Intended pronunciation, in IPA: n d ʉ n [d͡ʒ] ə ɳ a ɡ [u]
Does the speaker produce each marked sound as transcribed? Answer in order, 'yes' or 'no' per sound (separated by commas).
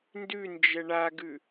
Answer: yes, no